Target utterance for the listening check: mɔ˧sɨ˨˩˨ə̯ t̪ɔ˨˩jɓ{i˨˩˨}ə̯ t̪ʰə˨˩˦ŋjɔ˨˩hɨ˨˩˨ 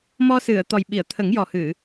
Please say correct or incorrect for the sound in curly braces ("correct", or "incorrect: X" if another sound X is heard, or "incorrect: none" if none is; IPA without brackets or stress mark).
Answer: correct